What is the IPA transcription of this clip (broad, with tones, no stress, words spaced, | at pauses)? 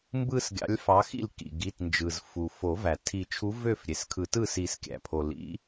mbɯ˥˧sɡʲɑ̰˨˥lʲfɑ˨˥ xḭ˥˩lkḭ˩ɡi˩˧˩tnd͡ʒɯ˩z fu˩ fo˨˩˦væ˩ tʰi˨˩˦t͡ʃʰu˨˥vø˥˩f ɾʲe˩skʰɯ˨˩˦tɯ˥˩ si˨˩˦skʲæ̰˩pʰo˩ lḭ˨˥